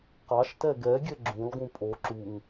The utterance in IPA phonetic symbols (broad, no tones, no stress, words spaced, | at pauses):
qɑʃtɛ ɡɛɡʲɛ ɡ͡ǁũlˠɡũ pʼo ǁuŋ